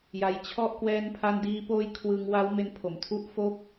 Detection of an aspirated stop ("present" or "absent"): present